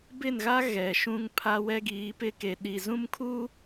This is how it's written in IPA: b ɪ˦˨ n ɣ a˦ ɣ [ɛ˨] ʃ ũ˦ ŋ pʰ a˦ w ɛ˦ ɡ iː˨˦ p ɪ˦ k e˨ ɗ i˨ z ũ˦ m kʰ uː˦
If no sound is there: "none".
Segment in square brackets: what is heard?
ɛ˨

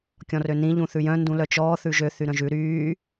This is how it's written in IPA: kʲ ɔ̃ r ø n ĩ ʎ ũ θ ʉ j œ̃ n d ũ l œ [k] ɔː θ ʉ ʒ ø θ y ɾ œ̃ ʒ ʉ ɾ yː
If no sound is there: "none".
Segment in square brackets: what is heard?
t͡ʃ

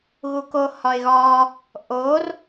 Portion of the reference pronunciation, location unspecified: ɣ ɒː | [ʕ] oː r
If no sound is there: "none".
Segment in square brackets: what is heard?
ʔ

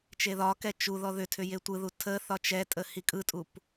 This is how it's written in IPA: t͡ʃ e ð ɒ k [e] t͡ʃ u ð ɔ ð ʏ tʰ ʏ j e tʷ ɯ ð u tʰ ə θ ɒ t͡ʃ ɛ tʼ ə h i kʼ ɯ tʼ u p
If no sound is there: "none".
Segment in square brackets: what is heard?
ɛ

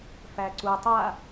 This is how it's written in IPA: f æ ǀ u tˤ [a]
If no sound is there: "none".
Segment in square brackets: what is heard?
a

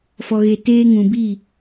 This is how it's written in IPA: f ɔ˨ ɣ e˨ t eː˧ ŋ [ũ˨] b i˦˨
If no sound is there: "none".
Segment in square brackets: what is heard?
ũ˨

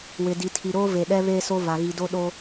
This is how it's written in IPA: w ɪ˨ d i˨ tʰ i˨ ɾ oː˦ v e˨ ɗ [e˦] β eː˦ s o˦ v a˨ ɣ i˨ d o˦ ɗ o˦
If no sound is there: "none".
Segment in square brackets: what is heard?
ɛ˦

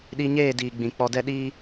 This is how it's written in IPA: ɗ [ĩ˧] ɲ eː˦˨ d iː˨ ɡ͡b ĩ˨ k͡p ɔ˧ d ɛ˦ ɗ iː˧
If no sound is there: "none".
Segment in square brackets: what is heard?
i˧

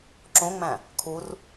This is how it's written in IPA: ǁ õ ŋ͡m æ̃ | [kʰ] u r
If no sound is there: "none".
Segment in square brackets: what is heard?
kʰ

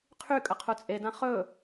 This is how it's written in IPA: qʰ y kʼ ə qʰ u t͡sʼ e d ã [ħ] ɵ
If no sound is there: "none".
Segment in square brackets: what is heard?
χ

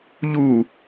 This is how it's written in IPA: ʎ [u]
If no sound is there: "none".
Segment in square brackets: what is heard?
u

